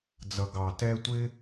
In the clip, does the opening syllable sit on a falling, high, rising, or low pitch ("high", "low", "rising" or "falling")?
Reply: low